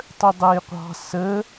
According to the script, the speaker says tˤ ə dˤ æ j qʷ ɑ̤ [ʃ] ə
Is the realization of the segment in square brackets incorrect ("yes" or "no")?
yes